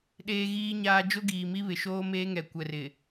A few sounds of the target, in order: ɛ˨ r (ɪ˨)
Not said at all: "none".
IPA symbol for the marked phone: ɪ˨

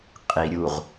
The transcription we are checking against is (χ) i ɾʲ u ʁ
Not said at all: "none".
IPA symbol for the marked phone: qʼ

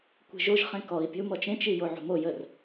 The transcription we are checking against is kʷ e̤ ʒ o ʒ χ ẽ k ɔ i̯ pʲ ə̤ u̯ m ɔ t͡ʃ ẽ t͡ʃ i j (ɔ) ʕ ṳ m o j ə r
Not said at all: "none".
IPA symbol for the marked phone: o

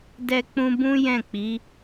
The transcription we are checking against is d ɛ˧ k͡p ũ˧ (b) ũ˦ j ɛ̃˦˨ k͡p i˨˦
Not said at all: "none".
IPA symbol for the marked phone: b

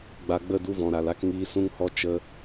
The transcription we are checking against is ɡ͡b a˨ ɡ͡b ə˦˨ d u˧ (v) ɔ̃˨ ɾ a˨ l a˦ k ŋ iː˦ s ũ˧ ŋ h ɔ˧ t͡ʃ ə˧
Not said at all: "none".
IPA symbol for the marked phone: v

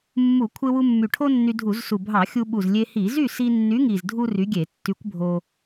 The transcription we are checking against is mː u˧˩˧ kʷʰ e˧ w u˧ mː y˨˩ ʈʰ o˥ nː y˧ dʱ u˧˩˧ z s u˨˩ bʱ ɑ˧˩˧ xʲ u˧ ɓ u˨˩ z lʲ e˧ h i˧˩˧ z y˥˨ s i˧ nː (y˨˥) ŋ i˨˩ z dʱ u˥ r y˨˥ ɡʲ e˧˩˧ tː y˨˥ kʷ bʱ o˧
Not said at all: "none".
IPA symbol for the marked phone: y˨˥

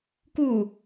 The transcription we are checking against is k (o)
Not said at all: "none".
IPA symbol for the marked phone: u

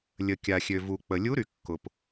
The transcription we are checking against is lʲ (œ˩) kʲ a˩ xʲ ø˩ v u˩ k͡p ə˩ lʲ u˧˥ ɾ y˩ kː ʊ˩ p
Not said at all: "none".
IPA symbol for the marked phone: ə˩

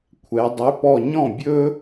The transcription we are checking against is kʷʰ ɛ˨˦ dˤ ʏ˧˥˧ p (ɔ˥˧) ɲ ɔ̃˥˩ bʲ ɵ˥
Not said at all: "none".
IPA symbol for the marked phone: ɔ˥˧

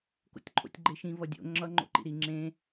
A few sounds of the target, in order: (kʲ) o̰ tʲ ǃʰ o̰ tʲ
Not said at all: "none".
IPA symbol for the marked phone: k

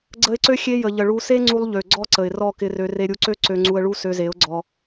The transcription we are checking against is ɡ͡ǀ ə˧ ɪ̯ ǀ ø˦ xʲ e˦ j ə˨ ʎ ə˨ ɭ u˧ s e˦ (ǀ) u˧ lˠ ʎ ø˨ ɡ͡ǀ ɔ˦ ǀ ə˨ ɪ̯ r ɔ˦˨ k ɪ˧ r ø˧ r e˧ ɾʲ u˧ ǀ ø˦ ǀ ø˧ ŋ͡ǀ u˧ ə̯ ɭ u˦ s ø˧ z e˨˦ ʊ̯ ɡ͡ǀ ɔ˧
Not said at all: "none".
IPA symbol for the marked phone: ŋ͡ǀ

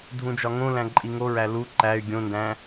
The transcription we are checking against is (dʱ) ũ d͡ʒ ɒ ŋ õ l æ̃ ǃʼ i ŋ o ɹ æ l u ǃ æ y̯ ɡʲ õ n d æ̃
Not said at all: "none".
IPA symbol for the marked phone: dʱ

